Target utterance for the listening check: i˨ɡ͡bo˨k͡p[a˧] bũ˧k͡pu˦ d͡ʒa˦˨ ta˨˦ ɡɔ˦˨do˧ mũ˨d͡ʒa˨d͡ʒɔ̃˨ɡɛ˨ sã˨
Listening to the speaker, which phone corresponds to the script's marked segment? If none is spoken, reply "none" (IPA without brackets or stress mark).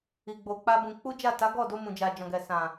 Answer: a˧